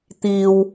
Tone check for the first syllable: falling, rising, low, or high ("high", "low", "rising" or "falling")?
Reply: low